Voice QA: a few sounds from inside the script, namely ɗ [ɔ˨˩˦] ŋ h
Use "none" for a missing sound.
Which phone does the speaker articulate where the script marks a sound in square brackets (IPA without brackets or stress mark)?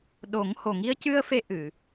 o˨˩˦